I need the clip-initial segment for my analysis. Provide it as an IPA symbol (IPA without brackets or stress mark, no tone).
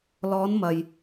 l